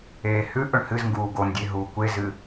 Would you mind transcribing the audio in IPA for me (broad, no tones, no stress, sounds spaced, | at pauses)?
eː h ʉ ʔ ɵ ɳ h ɨ z ŋ ɡ uː ɡ o n dʲ e ɦ uː kʷ e z ɨ